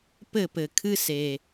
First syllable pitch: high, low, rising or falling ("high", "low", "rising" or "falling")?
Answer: falling